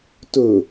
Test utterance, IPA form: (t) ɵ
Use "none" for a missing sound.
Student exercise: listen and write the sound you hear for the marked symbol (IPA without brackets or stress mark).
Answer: t